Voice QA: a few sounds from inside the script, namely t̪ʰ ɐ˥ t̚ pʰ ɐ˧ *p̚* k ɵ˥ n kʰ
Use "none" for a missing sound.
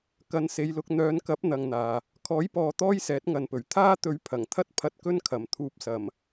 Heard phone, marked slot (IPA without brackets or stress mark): t̚